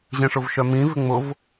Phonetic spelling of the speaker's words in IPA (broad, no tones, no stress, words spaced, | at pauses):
ʑẽʂʊvʃœmĩ vɪŋ͡mʊv